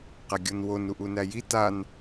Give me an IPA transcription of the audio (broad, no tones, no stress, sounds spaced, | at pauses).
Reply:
q æ ɡʲ o n w o n u ʔ u n æ j i t a n